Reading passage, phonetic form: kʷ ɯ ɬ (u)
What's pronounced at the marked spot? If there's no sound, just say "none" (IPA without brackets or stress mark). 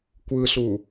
u